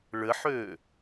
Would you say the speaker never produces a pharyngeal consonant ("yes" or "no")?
no